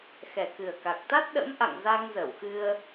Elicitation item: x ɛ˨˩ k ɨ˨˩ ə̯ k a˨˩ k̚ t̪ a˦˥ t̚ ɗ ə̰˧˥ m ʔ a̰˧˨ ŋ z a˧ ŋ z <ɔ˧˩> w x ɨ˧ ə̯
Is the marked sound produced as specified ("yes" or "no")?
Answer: no